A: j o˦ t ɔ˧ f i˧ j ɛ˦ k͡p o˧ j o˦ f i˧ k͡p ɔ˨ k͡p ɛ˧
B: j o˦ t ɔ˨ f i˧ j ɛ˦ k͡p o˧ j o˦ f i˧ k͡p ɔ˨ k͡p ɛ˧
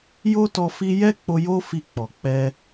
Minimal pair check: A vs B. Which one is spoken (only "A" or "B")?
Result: A